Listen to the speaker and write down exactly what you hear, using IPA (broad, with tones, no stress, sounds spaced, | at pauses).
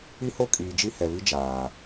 i˦ h o˦ kʼ iː˨ d͡ʒ i˦ h ɛ˨ β i˦ d͡ʒ aː˨